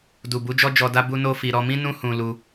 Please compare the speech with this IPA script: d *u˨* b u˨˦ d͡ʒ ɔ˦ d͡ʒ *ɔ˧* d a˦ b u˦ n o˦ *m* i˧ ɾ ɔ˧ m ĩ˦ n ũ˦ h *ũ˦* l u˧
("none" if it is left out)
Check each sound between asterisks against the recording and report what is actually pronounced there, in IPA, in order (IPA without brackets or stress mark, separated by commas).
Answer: u˨, ɔ˧, f, ũ˧